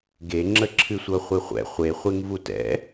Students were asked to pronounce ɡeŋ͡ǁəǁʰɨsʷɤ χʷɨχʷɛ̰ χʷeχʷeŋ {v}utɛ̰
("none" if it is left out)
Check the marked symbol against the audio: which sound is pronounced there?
v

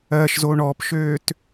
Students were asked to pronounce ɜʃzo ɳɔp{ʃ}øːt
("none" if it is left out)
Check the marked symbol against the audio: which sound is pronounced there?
ʃ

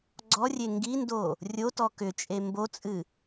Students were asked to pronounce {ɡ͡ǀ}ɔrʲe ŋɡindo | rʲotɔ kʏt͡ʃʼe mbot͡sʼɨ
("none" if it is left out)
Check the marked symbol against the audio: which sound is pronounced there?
ɡ͡ǀ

